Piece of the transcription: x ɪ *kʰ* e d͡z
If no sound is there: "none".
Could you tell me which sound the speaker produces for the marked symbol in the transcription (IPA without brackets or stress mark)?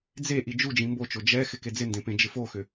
k